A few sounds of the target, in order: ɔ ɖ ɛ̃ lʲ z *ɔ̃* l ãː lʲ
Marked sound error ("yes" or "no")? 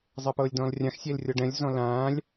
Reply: no